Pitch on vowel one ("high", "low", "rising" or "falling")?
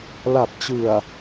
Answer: low